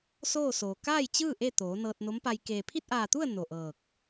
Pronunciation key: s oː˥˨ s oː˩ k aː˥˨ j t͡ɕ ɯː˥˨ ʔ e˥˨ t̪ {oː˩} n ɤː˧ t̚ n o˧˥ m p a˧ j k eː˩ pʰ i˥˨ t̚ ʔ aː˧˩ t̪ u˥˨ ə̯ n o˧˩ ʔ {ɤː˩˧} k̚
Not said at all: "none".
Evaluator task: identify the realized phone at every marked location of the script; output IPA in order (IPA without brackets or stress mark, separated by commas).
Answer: oː˩˧, ɤː˧˩